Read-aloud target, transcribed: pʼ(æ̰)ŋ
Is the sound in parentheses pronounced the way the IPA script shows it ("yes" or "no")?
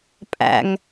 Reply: yes